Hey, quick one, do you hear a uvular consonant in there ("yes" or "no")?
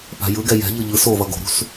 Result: no